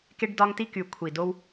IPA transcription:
ke˥ɖdɒ˥ŋ ti˥ky˧˩ kʷʰi˧˩do˥w

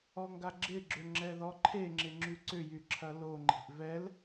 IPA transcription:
ɔŋɡaɡ͡ǁɪɡ͡ǁʏ ŋ͡ǁɛðɔǃʰeŋ͡ǁɪ ŋ͡ǁyǀʏjy ǁʰɐloŋ͡ǃe̤ʔ vɛl

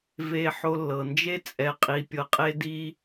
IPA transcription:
ve˧ ħo˧lːɤ˨nd͡ʒe˦ t͡sʼɛ˧qʼi˧ pʲɤ˧qʼe˦di˦

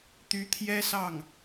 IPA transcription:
t̪y˧˥t̪ʰjɛ˥ sɑ˥˩ŋ

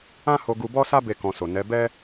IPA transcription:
ã˦ho˧ ɡu˧bɔ˦sa˦ be˦˨kɔ̃˧so˨ nɛ˨˦ bɛ˦

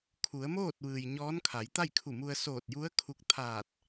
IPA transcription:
kʰu˩˧ə̯moː˥˨t̚ʋɯː˩j ɲɔː˧˥nkʰa˩˧jt̪a˥˨j kʰu˧˩mu˧ə̯ soː˧˩t̚ju˧˥ə̯ kʰu˧k̚ t̪ʰaː˧˩t̚

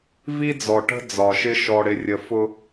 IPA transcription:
vi˦d͡zɔ˨ʈə̤˦ d͡zɒ˨ʃɪ˦ ʃɔ˨ɽɪ˨rʲə˨ fʊ˦

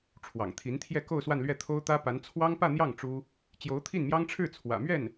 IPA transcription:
ʈ͡ʂʰwɑ̰˨˩ŋt̪ʰi˧˥nt̪ʰjɛ˥˧ ko˥˧ʊ̯swa˥˧nlɥɛ˥˩ t̪ʰo˥ʊ̯t̪ä˥pa˧˥n t͡sʰwɑ˥ŋpä˥˧n̪jɑ˥˩ŋ ʈ͡ʂu˥ | t͡ɕjo˧˥ʊ̯t̪ʰi˥˩nmjɑ˥ŋʈ͡ʂʰɻ̩˥˩ t͡sʰwä̰˨˩mɥɛ˥˩n

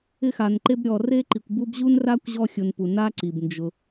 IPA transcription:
ɪ˦xa˨n ǃe˦b ɾʲɔ˨re˥ǃi˨kʷ bu˦bʑu˥nra˥kʷ ʑɔ˦xʲʊ˨npu˩ na˥ ǀi˩bnd͡ʒʊ˨

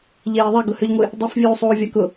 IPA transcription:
ʎeːðˤɛ ɡʊhʏʎŋʷɪ | dˤøfvʲuːsˤuːvʲa kʊ

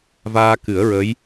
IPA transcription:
vaː˧kɨ˨˩˦ə̯ɹə˧˥j

